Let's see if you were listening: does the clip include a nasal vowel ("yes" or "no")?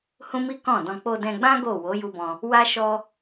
yes